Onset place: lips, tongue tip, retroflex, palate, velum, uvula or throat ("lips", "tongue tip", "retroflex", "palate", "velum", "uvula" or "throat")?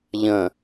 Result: palate